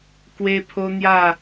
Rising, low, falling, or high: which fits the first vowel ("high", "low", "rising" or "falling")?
high